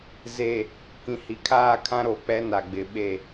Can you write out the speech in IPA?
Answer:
ze˨ | kĩ˨hi˨kʰaː˦˨kʰã˦ ɾo˨k͡pɛ˦na˨ ɡ͡bɪ˨ɓe˦˨

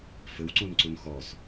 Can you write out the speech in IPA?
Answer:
fɘwǀũnǀun xɔs

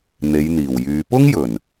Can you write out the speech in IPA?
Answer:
n̪e˨˧jn̪iː˨˩w jyː˨˧ pʊ˥ŋjɵ˨˩n

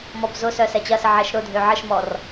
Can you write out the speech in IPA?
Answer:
mɔbzʊsœ sɛt͡ɕɐsə ʕɛʃɾʊdʱø ʕəʃmɔr

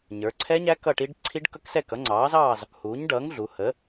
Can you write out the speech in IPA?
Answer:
ɲə˞˩˧ǀʰɛ˦˥ɲæ˦˥ kʌ˥˨ʈi˦˥ɖ ǀʰi˦˥ɖkʌ˦˥ksɛ˥˨ kʌ˩˥ŋ͡ǀɑː˩˥zɑː˥˨z | huː˩˥ɲɖʌː˩˥ŋ ɮu˩˧hə˩˥

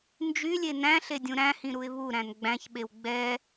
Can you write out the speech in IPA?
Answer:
nd͡ʒylʲe næ̃ɬe dʲũɾæ̃hĩ ɾuɪ̯βuɾæ̃n ɡ͡bæ̃çɓew ɡ͡bɛ

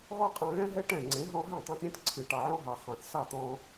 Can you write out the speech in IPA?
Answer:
ɣɔ˦qʼɑ̃˧ɣɛ̃˦ɦɛ˦ ʈɛ̃˦˨ŋ͡ǀẽ˨˦ ɦɔ̃˧ɦɛ̃˦˨tˤɛ̃˧t ɾʲɛ̃˧t ǀʰɨ˨ ʈɑ˨ʕɔ̃˦ɦɑ˨ χɑ̃˨θ sɑ˦˨t̪ɔ̃˧

